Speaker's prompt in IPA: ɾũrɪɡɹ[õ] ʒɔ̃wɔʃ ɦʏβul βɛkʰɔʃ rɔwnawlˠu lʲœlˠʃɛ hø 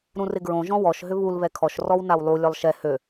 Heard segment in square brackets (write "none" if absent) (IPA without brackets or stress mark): õ